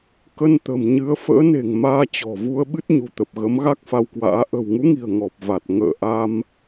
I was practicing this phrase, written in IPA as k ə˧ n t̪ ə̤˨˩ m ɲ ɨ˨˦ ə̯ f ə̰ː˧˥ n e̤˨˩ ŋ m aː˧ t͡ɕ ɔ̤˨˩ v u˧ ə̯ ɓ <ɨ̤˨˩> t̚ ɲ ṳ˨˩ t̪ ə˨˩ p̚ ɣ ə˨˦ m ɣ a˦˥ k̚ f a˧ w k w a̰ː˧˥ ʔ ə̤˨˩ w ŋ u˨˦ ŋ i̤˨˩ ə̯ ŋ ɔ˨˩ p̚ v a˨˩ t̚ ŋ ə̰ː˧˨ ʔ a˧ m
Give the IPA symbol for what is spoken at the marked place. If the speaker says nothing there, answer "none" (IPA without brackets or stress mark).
ɨ˦˥